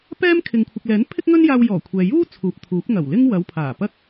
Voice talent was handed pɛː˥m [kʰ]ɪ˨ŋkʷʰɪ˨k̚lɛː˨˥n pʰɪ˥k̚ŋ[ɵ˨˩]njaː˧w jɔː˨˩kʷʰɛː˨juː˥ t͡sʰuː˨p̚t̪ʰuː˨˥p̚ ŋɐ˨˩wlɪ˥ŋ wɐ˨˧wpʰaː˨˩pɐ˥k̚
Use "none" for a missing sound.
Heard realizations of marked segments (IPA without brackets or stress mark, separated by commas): kʰ, ɵ˥